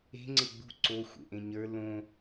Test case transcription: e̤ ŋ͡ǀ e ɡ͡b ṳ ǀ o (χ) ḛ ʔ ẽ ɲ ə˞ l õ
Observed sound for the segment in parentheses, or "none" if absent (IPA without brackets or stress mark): xʷ